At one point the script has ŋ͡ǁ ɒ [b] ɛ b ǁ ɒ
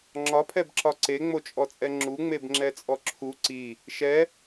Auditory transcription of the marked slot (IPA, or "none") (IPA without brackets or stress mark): pʰ